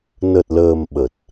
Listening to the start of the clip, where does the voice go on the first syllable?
low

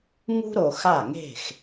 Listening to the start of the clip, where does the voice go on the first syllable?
high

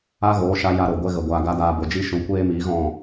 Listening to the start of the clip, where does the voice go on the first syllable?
high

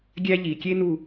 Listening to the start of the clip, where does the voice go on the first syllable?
high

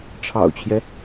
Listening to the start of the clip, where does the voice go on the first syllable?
low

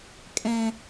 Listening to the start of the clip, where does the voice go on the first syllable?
low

